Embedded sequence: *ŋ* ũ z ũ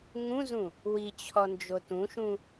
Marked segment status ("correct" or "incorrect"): correct